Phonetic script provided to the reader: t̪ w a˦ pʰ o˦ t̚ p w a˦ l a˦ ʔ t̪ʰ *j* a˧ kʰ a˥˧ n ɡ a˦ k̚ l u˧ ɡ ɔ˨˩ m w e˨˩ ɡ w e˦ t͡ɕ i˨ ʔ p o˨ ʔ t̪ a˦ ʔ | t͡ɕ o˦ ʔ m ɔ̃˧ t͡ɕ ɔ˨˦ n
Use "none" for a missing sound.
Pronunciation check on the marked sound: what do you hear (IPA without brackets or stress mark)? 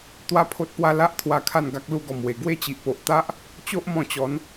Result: w